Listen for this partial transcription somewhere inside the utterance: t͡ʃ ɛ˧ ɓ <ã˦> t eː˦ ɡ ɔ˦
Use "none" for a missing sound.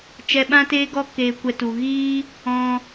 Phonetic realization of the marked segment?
ã˦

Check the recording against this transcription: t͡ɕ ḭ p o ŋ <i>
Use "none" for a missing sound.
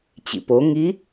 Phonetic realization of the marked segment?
i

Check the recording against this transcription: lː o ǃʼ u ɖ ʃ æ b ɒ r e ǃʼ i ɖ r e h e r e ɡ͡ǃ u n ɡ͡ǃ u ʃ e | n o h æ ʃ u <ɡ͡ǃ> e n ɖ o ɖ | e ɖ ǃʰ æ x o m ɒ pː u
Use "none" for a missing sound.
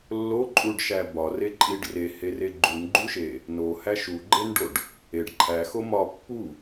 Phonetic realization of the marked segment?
ɡ͡ǃ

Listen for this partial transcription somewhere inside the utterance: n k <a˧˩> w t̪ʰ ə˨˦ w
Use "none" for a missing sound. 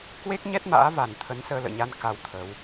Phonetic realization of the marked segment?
a˧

